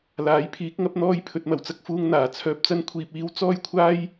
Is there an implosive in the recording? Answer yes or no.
no